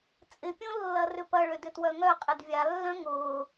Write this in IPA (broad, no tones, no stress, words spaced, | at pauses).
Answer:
t͡sʼɪpʲõ lːɐrʏpɐ ɭødʏtwœŋœ qʼɪdvʲalːœ̃ ŋʊː